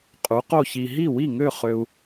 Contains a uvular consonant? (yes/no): yes